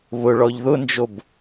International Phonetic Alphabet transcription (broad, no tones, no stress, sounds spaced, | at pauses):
β ʊ ɭ ɔ ʎ ð ʊ n d͡ʒ o b